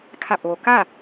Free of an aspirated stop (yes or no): no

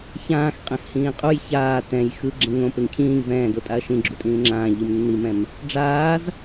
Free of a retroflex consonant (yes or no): no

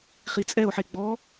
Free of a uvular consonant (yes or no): no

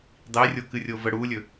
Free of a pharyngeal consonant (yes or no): yes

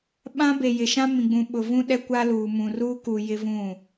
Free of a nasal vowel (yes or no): no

